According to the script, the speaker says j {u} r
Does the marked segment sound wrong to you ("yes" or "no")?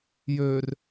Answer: yes